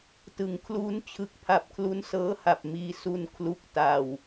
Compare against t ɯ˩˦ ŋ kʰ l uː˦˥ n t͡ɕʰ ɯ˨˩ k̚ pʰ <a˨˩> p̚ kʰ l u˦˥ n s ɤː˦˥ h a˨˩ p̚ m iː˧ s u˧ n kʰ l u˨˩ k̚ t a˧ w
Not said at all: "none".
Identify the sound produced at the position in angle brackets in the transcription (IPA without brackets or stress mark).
a˨˩